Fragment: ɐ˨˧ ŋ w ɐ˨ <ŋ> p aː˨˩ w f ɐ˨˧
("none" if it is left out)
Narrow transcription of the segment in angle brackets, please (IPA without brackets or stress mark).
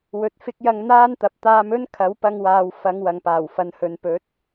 ŋ